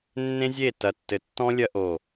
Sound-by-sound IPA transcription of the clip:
nː ẽ˦ zʲ e˦˨ t ɐ˨ tː ɘ˨ tː ɔ̃˦ lʲ ɐ˦ ʔ o˦˨

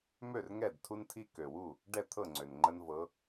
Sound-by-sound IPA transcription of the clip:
m ø˥˩ r ŋ ɛ˥˩ d tʰ u˦ n tʰ i˦ k ø˨˩ w u˥˩ | ɖ ɛ˥˩ t̪ʰ ɤ˥˩ ŋ͡ǀ ø˨˩ n ŋ͡ǃ ə˦ n v ɤ˨˦

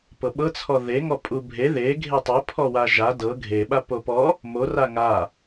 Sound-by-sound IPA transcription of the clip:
p ɤ ɓ ɤ t͡sʰ ɔ ð e ŋ ɔ pʼ u bʱ e ð e ɡʱ e tˤ ɤ pʰ ɔ w a ʒ a d ɤ ɡʱ e ɓ a p o p ɔ | m o r a ŋ a

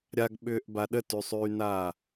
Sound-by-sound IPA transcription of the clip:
ɾʲ a ɡ ɓ ʏː ʔ b a ɗ ə t y sˤ yː n aː

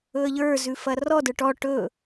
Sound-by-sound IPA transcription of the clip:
ɵ ə̯ ʎ ə˞ z ʉ f ɐ r ɔ d ə˞ ʈ ɔ ʈ ɵ

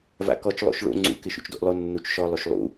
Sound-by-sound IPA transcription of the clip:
v a̰ k ɔ t͡ʃ lˠ o̰ ʃ ɭ o̰ ŋ͡ǀ ṵ k ɪ ʃ ṵ t͡ʃ d o̰ ʔ lˠ o nː u t͡ʃ ʃ ɔ lˠ o ʃ lˠ ṵ

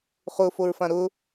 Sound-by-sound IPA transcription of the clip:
χ ʊ f o ɹ f ã ɾ ʊ

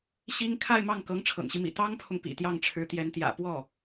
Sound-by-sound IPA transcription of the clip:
ɕ i˥ ŋ kʰ a˥˧ ɪ̯ m ɑ˥˩ ŋ k ɤ˧˥ ŋ ʈ͡ʂʰ ɤ̰˨˩ ŋ ɕ i˦ m ḭ˨˩ t̪ ɑ˥ ŋ pʰ ʊ˨ ŋ p ḭ˨˩ t̪ j ɑ˥˩ ŋ ʈ͡ʂʰ ɻ̩˧˥ t̪ j ɛ˧˥ n t̪ j ä̰˨˩ p w ɔ˥˩

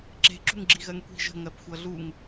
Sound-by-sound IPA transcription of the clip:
ǁ e̤ ǁ ṳ ŋ ɡ͡ǁ i ɣ ɜ ŋ kʷ i̤ ʒ ə̤ ŋ ɜ p xʷ ʌ ɮ u ŋ

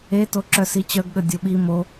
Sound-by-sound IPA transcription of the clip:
e t o ǁ œ s i t͡ɕ œ ɡ ɠ ə dʲ o ɓ i m o

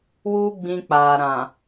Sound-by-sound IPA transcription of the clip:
w u˦ ɡ͡b ĩ˧ k͡p a˨ ɾ ã˨

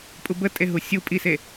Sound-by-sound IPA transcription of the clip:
pʼ u b ə tʼ e ɦ u sʲ u pʼ i s e

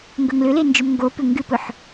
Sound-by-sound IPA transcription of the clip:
ŋ ɡ ɵ ŋ l ʏ l e n d͡ʒ ʏ m ŋ ɡ o p ʏ ŋ ɡ ɨ p ɵ ħ

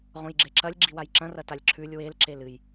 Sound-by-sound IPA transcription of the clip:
ʁ õ j ɡ͡ǁ e ǁ ɐ lʲ ɡ͡ǁ i w a j ǁ ɐ̃ r ɐ t a lʲ ǁʰ ʉ lʲ w e l ǁ e l ɨ j

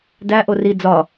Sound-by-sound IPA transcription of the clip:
d æ ʔ o r i d͡z ɒ

